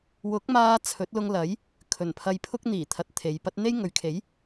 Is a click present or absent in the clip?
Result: absent